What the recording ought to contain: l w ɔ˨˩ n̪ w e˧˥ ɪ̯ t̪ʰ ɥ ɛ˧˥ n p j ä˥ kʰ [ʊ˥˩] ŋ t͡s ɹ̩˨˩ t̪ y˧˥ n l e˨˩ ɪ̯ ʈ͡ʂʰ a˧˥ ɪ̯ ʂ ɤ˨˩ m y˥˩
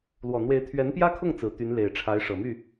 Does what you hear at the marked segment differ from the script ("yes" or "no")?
no